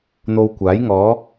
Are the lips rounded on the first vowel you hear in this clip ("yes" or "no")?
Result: yes